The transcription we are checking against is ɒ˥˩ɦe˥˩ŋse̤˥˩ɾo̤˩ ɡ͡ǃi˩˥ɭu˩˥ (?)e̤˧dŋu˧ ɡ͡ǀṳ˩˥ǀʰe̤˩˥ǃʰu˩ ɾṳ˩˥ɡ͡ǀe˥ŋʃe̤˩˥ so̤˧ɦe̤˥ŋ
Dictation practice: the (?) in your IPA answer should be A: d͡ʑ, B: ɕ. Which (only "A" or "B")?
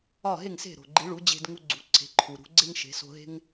A